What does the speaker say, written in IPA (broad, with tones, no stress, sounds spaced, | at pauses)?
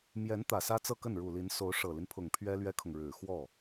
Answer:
m j ɛ˧˥ n t̪ ä˨˩ s ä˥ t͡s ɤ˥˧ k ə˥˩ n ɻ u˨˩ l i˧˥ n s o˧˥ ʊ̯ ʂ ɤ˨˩ l i˦ n pʰ ʊ˨˩ ŋ pʰ ɥ ɛ˥ l ɥ ɛ˥ kʰ ʊ˨ ŋ ɻ ɻ̩˨˩ x w ɔ˥˩